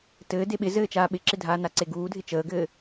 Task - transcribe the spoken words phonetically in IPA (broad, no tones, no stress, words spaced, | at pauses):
tɘː deɓɪzɘː t͡ʃaːɓɪǁɪdʱaː naǀeɡuːdʱɪ t͡ʃəːɡɘː